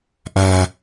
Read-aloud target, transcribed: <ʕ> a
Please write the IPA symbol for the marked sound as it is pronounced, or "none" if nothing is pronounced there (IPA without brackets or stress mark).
ʔ